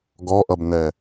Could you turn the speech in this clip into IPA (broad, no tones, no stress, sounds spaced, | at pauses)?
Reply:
ɡ ɔ ʔ ʌ b n ɛ